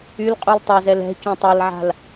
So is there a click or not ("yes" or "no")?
no